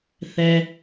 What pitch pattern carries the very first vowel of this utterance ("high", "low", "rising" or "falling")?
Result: low